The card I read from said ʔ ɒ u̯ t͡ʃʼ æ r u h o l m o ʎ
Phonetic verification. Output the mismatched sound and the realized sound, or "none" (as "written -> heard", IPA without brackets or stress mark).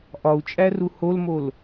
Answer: ʎ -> l